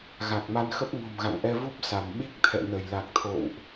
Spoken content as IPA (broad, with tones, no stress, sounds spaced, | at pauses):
ɣ a˨˩ k̚ m a˧ n x ə˦˥ p̚ ŋ o̤˨˩ m ɣ a̰˧˨ ŋ ʔ ɛ˧ v u˦˥ p̚ s a˧˩ m ɓ i˦˥ k̚ t̪ʰ ɛ̰˧˨ n ə˧˩ j l a˨˩ k̚ t̪ʰ o̰˧˨ w ʔ